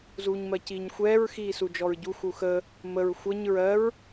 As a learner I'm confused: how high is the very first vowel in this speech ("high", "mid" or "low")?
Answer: high